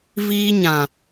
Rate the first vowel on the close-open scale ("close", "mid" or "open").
close